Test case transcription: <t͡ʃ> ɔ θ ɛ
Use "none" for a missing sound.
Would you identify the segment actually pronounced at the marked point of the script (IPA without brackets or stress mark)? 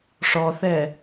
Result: ʂ